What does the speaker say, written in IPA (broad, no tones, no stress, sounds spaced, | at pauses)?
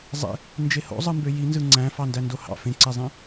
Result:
zˤ ḛ | n d͡ʒ e h o̰ zˤ ɯ m b ø j i n z ɯ ŋ͡ǀ æ̃ f ɑ n d æ n d o h ɑ̰ f ẽ ǀ e zˤ ẽ